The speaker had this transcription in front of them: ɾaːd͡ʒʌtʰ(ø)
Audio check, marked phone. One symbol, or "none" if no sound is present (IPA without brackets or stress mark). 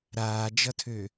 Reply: ø